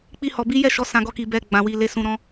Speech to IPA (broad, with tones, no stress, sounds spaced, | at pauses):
k͡p i˧ h ɔ˨ b i˨˦ j ɛ˦˨ ʃ ɔ˨˦ s ã˧ ɡ ɔ˧ k i˨ b ɛ˨ ɡ͡b ã˨ w i˨ l e˨ s ũ˨ ɾ ɔ̃˨˦